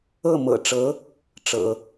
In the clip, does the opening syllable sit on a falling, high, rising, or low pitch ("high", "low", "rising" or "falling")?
falling